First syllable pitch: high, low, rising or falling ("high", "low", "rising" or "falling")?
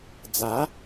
rising